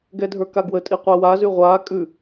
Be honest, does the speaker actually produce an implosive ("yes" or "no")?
no